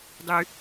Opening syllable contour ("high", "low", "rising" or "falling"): low